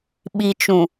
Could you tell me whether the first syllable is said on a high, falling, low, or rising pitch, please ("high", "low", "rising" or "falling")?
low